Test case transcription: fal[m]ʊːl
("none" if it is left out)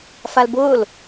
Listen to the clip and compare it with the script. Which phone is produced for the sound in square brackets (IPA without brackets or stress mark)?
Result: b